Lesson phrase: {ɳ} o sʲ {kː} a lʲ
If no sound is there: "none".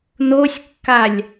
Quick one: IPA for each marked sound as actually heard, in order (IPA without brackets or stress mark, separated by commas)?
n, kː